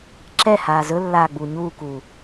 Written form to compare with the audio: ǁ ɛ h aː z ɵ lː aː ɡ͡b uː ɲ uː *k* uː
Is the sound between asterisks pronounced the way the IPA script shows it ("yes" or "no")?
yes